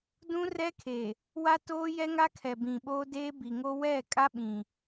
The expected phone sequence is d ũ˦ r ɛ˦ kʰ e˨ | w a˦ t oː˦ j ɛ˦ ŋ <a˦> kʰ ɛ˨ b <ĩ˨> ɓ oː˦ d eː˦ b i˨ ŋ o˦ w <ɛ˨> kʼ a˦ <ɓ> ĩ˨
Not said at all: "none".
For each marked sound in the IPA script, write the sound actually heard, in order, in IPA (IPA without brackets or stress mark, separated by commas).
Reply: a˦, ĩ˨, ɛ˦˨, ɓ